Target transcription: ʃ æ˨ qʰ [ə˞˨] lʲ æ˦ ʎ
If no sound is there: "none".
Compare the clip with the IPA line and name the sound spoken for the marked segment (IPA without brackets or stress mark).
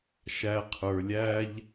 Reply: ə˞˨